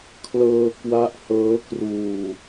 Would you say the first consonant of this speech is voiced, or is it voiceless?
voiceless